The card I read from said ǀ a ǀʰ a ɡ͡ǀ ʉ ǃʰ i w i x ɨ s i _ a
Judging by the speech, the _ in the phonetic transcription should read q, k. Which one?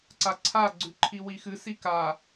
k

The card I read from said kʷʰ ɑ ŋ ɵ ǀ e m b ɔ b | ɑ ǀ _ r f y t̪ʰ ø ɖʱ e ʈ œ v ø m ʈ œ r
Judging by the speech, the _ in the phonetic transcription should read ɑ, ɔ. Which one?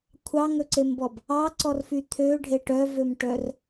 ɔ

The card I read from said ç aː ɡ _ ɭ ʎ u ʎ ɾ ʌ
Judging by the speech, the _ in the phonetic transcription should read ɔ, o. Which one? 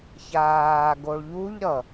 o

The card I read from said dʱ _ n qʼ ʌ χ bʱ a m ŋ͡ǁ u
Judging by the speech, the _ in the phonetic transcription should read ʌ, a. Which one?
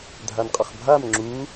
a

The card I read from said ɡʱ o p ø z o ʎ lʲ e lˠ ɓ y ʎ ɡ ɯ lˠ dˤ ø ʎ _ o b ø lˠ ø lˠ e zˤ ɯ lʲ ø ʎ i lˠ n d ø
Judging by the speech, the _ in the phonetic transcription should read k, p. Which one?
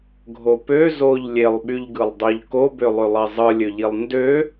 k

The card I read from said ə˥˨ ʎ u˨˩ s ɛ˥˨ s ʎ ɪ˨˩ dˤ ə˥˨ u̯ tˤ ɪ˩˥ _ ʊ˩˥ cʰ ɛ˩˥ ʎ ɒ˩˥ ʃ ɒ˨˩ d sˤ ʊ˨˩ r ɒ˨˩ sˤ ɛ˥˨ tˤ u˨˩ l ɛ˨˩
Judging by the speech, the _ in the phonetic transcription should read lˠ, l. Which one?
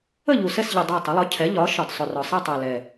lˠ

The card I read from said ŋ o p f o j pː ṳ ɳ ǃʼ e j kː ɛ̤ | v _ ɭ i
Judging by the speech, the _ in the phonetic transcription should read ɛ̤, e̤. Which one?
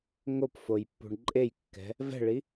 ɛ̤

